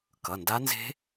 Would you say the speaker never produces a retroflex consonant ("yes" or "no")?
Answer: yes